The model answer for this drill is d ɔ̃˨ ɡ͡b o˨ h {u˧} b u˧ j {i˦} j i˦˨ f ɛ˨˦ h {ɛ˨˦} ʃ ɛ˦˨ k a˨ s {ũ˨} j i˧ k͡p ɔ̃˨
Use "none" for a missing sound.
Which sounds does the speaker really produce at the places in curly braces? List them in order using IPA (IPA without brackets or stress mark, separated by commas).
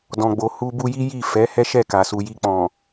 u˧, i˦, ɛ˦, u˨